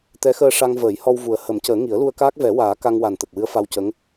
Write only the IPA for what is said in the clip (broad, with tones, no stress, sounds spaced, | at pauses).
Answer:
t̪ ɛ˧˥ x əː˧ ʂ a˧ ŋ v əː˨˩˦ j h ɔ˧ w v u˨˩ ə̯ h ə˨˩˦ m c əː˨˩˦ ŋ i˨˩˦ ə̯ l u˧ ə̯ k aː˦˥ k̚ v ɛ˨˩˦ w aː˨˩˦ k a˧ ŋ w a˨˩ n t̪ ə˨˩ k̚ w ɨ˧˥ ə̯ f a˧ w c ə˧˥ ŋ